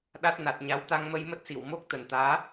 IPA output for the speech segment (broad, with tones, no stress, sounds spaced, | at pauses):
ɗ a˦˥ t̚ n a˨˩ t̚ ɲ a˨˦ w t̪ a˧ ŋ m ə˧ j m ə˦˥ t̚ s i˧˩ w m o˦˥ k̚ t̪ ə˨˩ n t̪ aː˨˦